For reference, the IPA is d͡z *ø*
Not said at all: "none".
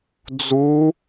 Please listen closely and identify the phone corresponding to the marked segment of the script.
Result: u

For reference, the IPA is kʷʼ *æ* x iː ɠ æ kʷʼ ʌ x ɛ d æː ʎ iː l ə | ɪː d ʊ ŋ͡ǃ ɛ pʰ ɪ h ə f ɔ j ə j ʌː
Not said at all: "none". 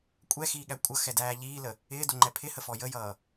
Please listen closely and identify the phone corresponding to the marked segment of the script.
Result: ɛ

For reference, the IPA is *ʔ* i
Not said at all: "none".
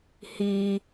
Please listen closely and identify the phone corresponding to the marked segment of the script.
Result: h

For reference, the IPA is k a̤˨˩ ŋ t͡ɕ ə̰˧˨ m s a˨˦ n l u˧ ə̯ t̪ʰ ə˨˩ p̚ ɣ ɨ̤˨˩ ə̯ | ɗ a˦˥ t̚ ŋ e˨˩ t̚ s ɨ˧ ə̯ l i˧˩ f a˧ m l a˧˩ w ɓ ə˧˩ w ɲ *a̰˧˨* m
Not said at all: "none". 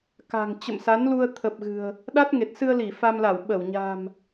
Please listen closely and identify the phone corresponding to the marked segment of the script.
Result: a̤˨˩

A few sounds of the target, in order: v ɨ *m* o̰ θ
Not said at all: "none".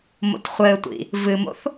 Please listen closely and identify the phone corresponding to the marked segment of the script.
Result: m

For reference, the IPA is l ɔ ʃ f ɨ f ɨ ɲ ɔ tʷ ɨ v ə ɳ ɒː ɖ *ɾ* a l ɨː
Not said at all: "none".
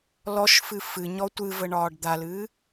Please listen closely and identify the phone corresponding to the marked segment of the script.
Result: d̪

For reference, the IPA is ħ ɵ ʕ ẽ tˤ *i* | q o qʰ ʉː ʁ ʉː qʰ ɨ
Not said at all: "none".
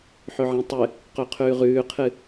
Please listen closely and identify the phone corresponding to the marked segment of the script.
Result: ɨ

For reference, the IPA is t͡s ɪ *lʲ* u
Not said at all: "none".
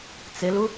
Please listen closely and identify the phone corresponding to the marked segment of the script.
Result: l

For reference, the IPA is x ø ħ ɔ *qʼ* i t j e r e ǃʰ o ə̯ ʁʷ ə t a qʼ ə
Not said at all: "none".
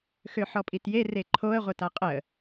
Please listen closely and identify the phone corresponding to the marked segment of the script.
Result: pʼ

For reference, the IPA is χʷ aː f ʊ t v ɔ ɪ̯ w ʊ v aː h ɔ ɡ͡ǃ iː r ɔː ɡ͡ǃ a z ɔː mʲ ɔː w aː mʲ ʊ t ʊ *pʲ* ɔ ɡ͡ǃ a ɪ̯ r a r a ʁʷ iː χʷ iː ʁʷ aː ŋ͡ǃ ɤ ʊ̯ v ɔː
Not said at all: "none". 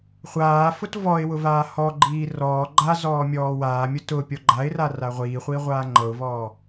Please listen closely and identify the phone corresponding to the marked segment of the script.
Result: pʲ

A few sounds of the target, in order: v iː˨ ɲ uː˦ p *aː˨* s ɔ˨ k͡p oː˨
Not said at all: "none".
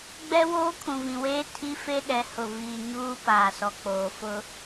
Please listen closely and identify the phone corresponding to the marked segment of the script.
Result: aː˨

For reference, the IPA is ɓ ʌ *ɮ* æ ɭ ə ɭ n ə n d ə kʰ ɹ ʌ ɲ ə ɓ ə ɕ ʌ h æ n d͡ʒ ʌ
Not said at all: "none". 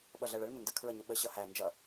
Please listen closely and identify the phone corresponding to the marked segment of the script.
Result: ɮ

